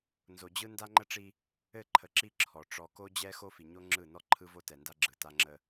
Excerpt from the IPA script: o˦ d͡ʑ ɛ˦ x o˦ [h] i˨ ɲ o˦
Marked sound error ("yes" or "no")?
yes